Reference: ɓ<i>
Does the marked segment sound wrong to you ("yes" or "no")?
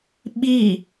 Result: no